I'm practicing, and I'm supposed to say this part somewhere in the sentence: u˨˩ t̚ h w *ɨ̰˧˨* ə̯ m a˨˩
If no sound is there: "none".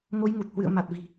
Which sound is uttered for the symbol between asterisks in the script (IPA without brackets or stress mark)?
ɨ̰˧˨